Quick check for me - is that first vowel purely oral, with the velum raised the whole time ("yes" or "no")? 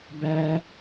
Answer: yes